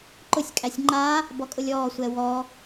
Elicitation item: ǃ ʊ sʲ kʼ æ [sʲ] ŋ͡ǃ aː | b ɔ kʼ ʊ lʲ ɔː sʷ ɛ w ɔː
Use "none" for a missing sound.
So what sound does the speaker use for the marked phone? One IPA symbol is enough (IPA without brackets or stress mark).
sʲ